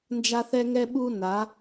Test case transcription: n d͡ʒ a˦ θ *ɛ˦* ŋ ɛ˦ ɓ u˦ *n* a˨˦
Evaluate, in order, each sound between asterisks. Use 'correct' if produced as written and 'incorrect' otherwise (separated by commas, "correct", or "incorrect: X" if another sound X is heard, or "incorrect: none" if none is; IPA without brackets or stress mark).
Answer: correct, correct